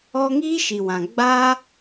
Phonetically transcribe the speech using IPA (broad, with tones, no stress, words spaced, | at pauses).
ɔ˦ ŋiː˦ ʃi˨wã˨ ɡ͡baː˦